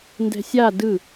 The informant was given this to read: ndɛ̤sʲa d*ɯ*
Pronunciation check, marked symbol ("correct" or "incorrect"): correct